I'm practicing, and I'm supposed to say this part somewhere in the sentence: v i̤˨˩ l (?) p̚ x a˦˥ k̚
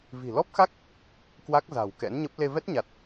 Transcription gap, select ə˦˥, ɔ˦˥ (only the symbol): ɔ˦˥